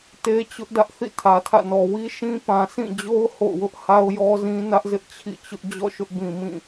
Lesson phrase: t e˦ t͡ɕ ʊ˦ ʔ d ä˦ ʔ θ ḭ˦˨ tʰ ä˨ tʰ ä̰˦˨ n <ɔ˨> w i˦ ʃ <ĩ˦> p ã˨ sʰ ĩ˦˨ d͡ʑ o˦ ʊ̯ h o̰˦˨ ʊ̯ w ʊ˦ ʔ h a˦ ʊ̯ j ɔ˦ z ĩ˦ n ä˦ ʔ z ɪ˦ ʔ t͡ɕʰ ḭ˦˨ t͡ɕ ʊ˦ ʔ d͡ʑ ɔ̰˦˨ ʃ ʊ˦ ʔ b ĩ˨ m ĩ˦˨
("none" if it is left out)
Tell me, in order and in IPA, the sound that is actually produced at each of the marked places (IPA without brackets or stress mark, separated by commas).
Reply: ɔ˨, ĩ˦